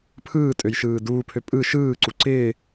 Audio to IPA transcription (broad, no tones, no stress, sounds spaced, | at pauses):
pʰ ɯː tʼ ø j ʃ ɯː d uː pʰ ø pʼ ɯ ʃ ɯː ǀ u ǀ ɪː